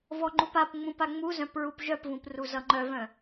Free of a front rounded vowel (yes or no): no